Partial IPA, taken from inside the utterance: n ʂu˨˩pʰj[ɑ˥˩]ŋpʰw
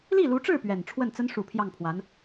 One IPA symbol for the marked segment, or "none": ɑ˥˩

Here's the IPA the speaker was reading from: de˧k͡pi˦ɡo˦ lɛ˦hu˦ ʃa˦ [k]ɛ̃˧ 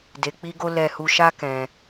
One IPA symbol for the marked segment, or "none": k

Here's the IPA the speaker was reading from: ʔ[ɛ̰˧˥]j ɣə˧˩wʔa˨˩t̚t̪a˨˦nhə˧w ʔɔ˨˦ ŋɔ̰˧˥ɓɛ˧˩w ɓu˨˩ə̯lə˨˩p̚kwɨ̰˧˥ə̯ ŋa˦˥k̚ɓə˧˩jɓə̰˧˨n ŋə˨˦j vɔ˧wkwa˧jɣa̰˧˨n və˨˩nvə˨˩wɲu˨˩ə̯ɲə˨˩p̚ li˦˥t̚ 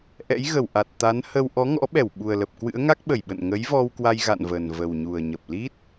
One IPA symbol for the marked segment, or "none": ɛ̰˧˥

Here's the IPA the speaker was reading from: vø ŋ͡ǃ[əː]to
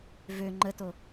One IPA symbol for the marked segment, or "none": ə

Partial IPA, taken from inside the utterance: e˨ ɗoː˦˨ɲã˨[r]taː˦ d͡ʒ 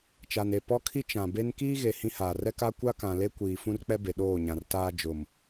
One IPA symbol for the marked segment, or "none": r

